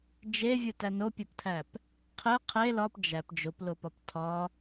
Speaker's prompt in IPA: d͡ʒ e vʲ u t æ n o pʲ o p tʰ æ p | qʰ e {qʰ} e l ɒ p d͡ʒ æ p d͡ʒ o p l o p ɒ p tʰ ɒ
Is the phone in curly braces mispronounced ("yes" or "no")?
no